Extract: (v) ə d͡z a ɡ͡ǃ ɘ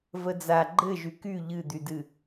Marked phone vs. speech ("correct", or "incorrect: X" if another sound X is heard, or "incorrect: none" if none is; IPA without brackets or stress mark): correct